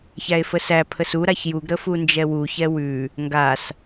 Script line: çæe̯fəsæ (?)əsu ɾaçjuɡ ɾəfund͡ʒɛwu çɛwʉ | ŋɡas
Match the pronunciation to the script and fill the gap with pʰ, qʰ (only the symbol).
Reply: pʰ